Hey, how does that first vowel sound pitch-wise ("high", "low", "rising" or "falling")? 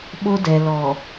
high